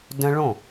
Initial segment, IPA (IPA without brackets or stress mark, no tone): d